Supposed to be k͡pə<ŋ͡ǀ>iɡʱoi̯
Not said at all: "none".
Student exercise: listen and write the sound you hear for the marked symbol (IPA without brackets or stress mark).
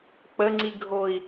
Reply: ŋ͡ǀ